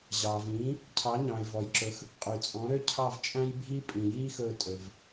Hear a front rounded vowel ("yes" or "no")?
yes